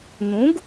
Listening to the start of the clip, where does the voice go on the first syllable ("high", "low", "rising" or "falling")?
rising